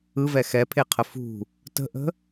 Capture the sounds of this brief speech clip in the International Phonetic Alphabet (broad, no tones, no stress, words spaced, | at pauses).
ɯvɛ xɛpʰeqʰə fṳ | tə̤ʔə̤